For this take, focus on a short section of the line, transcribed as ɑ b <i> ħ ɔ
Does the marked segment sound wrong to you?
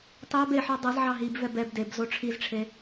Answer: yes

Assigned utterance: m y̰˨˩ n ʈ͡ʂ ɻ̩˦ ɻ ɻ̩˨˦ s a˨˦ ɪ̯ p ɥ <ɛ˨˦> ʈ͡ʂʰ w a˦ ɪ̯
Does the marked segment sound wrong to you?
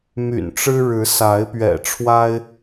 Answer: yes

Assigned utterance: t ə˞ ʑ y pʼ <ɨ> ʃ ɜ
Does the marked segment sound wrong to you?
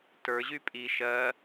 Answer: yes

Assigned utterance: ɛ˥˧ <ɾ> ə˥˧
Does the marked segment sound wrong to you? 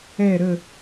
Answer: no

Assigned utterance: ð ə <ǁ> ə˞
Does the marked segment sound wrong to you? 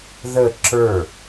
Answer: no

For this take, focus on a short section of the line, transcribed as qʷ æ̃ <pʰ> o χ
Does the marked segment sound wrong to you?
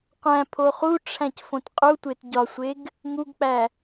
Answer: no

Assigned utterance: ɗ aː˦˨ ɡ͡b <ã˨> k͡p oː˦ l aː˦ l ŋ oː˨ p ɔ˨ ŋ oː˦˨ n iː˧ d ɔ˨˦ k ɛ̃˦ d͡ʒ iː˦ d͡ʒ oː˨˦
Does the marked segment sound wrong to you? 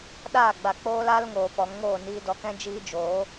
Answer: yes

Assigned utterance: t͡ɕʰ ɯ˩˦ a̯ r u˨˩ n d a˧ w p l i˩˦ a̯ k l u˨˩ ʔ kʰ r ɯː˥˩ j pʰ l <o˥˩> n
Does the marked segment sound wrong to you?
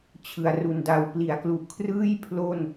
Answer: no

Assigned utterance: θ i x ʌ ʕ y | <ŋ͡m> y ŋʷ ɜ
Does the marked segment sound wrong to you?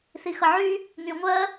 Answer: yes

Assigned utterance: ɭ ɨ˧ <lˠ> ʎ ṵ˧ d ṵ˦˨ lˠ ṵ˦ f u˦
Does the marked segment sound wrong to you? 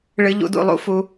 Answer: yes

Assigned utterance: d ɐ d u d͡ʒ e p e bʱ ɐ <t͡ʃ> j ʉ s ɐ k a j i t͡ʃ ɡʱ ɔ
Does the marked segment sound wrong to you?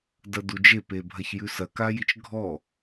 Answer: yes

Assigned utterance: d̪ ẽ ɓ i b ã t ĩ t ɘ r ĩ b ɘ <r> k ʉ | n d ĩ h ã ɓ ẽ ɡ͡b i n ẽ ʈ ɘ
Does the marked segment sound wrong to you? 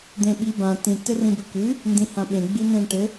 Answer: yes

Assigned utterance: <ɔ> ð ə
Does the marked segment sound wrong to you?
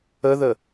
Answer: yes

